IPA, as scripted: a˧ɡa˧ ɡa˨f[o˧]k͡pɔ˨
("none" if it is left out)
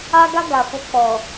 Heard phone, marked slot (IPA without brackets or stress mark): o˧